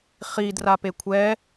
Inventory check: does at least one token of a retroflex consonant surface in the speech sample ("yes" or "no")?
no